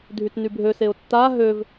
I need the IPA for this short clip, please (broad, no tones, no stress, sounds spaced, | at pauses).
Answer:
dʱ y t n y bʱ ø s e ʊ̯ tː a ɦ ø v